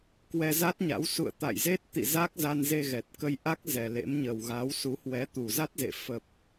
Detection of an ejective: absent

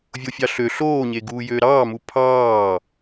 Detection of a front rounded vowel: present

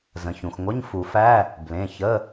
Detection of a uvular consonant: absent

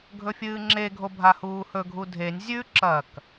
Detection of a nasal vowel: absent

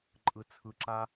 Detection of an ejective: present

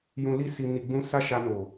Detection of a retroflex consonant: absent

